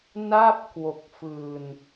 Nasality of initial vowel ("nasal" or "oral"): oral